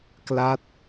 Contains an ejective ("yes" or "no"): no